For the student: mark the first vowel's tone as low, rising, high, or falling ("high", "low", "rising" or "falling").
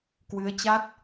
rising